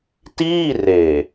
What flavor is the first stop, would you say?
plain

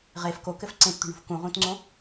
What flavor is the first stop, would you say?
plain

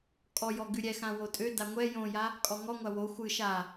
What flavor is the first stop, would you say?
ejective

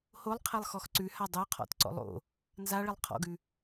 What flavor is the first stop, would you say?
aspirated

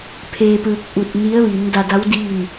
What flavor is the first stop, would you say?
aspirated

